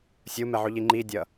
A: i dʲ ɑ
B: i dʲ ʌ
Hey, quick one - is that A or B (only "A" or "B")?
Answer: B